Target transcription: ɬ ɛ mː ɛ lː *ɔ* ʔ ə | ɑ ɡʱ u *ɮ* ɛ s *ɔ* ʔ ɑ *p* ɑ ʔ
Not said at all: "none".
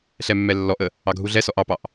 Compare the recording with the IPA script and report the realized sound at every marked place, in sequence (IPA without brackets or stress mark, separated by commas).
ɔ, ɮ, ɔ, p